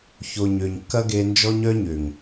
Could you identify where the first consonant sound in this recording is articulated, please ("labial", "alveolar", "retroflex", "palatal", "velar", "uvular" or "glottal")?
palatal